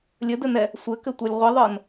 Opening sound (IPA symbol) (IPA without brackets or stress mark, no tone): lʲ